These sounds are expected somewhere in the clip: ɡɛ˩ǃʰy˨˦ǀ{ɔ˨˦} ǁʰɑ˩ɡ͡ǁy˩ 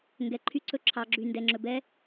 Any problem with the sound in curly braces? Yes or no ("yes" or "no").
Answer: yes